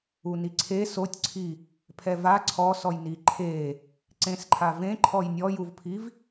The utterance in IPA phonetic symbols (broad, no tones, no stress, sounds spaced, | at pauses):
u n i ǀʰ e s o tʲ ǀʰ i | pʰ ɛ v a ǀʰ ɔ s ɔ j n i ǃʰ e | ǀ ẽ s ǃʰ a v ẽ ǃʰ ɔ j nʲ ɔ j u v pʰ i v